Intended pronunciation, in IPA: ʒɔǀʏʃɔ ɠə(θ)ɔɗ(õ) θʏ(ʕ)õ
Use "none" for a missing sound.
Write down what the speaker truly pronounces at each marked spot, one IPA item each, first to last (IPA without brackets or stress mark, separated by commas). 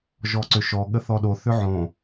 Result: θ, o, ʕ